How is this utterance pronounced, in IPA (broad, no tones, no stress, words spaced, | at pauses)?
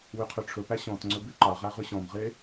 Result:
wyqʰyʈ͡ʂʰɵpæ ɕɔ̃tŋ͡ǀɵ byǃɑʁæ ʁʉɕɔ̃mʁe